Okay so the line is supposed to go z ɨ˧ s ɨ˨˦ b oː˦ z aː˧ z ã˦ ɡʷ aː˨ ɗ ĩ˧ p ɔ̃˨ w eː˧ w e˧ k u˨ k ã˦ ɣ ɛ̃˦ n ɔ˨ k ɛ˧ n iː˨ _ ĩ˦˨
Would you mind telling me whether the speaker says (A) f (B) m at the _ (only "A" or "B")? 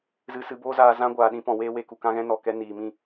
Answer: B